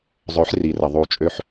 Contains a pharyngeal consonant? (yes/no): yes